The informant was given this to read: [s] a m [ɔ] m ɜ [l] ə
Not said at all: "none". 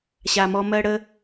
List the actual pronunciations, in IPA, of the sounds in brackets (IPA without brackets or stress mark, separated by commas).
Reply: ɕ, ɔ, ɽ